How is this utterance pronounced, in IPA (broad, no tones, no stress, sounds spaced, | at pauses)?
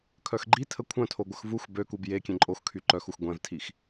kʰ œ x ɡ͡ǃ i tʰ ə kʷʰ œ̃ tʰ o ɡʷ ə x v u x b ø k u b j e kʲ ẽ ǃʼ o x kʰ y ǃ œ x u x ɡʷ ɛ̃ v tʰ i x